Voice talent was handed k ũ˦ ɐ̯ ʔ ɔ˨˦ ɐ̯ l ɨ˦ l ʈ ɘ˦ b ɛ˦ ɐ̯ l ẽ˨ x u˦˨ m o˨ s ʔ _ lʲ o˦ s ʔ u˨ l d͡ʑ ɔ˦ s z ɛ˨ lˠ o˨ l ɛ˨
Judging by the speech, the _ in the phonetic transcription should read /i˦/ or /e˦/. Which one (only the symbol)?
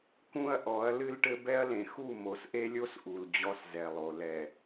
e˦